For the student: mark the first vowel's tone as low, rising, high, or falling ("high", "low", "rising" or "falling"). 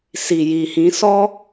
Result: low